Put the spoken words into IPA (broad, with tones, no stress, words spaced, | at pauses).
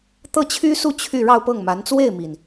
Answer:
t̪ɤ˥˩t͡ɕʰy˥su˥˧ t͡ɕʰy˥˧ ɻɑ˥˧ʊ̯pɤ˥˩ŋma˧˥n t͡swe˥˩ɪ̯mi˩n